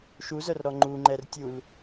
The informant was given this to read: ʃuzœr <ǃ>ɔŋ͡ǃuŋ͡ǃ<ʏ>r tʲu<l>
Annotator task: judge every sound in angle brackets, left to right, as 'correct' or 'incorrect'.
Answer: incorrect: ɾ, incorrect: ɛ, correct

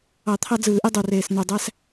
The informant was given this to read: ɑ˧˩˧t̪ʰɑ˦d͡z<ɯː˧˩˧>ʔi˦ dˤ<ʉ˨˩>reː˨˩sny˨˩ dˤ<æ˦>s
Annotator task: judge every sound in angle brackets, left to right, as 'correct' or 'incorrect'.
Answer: correct, incorrect: u˨˩, correct

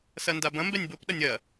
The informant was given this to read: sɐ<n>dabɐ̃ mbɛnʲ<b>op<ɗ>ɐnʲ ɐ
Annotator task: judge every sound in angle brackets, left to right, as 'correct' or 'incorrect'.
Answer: correct, correct, correct

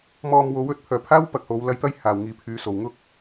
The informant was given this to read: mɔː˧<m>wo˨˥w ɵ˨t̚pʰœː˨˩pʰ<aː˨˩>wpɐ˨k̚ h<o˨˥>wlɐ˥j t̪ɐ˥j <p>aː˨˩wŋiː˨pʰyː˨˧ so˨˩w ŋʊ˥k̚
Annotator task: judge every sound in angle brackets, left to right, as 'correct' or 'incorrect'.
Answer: correct, incorrect: aː˥, correct, incorrect: h

